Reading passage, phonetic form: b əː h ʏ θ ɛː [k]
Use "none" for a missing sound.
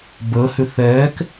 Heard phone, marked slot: k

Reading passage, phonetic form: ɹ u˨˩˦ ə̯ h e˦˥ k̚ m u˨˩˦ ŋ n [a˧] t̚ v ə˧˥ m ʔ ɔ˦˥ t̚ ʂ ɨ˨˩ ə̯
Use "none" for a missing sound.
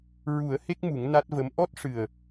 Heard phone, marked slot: a˦˥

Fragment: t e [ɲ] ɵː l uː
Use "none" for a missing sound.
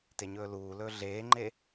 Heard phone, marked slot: ɲ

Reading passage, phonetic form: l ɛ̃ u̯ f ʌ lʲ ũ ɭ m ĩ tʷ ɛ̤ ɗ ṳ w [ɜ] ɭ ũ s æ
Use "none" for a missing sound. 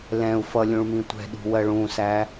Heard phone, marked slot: ɜ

